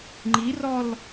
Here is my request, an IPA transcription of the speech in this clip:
ŋ͡ǃ i r ɔ l

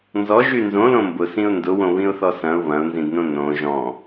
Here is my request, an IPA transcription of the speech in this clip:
n z ɔ ʒ y n z õ l õ m b ʊ s ĩ ʊ̯ n d ʊ w õ β ĩ ʊ̯ θ ɔ s ɐ̃ ʊ̯ β ɐ̃ ʊ̯ n z ĩ d n õ n õ ʒ ɔ̃

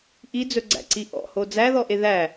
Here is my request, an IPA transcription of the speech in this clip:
ʔ i d͡z ɵ ɡ͡ǀ æ̰ ǀ i ʔ ɔ̰ h o d͡z æ ð ɔ ʔ e ð æ

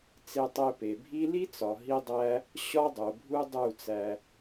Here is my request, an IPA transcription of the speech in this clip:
t͡s e˧ tˤ e˧ p e˨ bʱ i˦ l i˦ t͡s ɒ˨ ɦ i˦ dˤ æ˦ | ɕ ɒ˦ dˤ o˨ bʱ u˦ dˤ u˦˨ t͡s æ˧

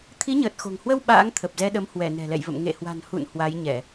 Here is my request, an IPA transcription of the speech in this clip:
t̪ʰ i˨˦ ɲ əː˨˩ t̚ x o̤˨˩ ŋ h w ə˧ w ɓ a̰ː˧˥ ŋ t̪ʰ ə˨˩ p̚ z ɛ˧ ɗ ə˨˦ m h w ɛ˧˩ n ɛ̤˨˩ l ɛ̰˧˨ j v ə̰˧˨ m ŋ ḛ˧˨ h w a̤˨˩ n h ṵ˧˨ n h w a˨˦ j ɲ ɛ˧˩˨

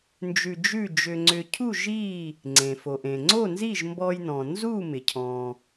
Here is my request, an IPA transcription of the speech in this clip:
n d͡ʒ ʉ˧ d͡ʒ ʉ˥˩ d͡ʒ ʏ˧ ŋ͡ǀ ʏ˧ cʰ u˥˩ ʒ i˥˩ | ŋ͡ǀ ẽ˩ f o˩ ʔ ẽ˩ ŋ͡ǀ o˥˩ n z i˥˩ ʒ m b ɔ˧ j n ɔ̃˩ n z u˥˩ m ɪ˩ cʰ ɔ̃˩

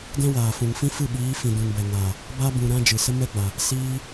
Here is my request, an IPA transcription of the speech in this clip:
d ɛ̃˦ w aː˨ f ũ˨ ŋ f ĩ˦ f ɨ˦˨ ɓ iː˨˦ f ĩ˨ d ũ˨ n b ɛ˨ ŋ aː˨ | b a˦ b ũ˨ ɾ ã˦ d͡ʒ ɨ˨ s ə˦ m ɛ˦ ɡ͡b a˨ | s iː˦

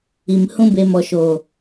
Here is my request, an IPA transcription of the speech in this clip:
i˨ m h ũ˦ b e˧ m ɔ˨ ʃ oː˨

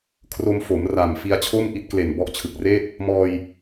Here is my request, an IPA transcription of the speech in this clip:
kʰ r o˧ m f o˩˦ m r a˨˩ m f i˧ a̯ t͡ɕʰ o˥˩ m ʔ i˦˥ t̚ k l e˨˩ n b ɔ˦˥ ʔ t͡ɕʰ ɯ˨˩ k̚ r eː˥˩ t̚ | m ɔː˧ j

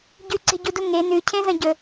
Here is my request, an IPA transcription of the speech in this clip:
ɟ ʉ ǀ e̤ ɟ u d u ŋ e n ʉ cʰ ẽ z ɐ̃ ɟ ɵ

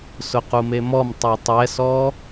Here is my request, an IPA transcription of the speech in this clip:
s ʊ q u m e m ɔ m tˤ e tˤ ɛ s ɔ

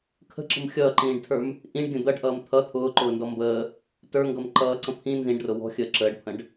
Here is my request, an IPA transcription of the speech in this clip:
kʰ ə̤ ǁ ə̤ m xʲ ʌː ǃ ĩː ɖ tʰ ə˞ m | ʔ ĩ ɖ ɡʲ ə̃ d̪ ʌ ɖ ʔ ʌː m t̪ʰ ʌ t̪ʰ ʊː ǃ ʊː n d ɔ m b əː | t ə˞ ŋ ɡ ʌ m ǃ ʌː ǀ ə̃ pʰ ĩ n z ĩ ɖ r ʊ w ɔ̤ xʲ əː ǁ əː ɖ pʰ ə̃ ɖ

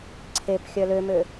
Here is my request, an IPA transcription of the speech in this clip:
ǀʰ e p xʲ œ l ø m ø

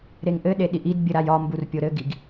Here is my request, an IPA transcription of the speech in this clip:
ɾ e ŋ ʔ ɘ ɗ e ɗ i ʔ i d bʲ ɘ ɾ a j ɒ m b u r pʲ o ɾ ɘ ɡ i ɡ

